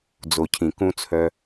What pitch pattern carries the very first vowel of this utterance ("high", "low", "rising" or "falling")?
low